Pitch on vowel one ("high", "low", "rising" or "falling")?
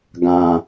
low